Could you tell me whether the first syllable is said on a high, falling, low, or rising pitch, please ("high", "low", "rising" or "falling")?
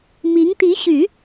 rising